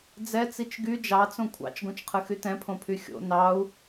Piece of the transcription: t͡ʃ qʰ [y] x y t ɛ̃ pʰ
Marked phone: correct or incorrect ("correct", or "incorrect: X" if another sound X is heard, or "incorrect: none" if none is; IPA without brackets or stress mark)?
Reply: incorrect: ɨ